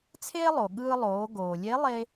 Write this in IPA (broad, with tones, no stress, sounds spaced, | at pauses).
t͡sʰ eː˥ lˠ o˩ ɠ ɯː˧ lˠ oː˩˧ ɡ oː˩ lʲ e˧˥ lˠ e˧